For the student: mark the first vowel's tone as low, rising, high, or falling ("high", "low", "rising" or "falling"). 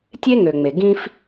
high